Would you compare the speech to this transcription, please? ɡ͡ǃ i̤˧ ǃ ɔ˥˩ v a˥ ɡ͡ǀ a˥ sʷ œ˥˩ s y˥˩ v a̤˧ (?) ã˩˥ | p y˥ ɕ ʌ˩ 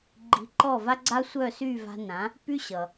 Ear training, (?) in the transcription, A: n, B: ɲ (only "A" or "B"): A